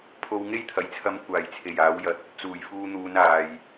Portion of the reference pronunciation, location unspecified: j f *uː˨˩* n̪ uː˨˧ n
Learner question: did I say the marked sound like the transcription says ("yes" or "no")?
no